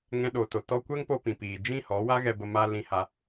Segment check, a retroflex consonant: absent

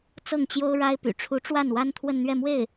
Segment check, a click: absent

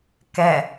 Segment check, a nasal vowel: absent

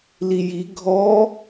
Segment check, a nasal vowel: absent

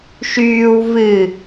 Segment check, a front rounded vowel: present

